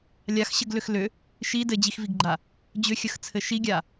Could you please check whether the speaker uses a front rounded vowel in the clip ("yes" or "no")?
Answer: yes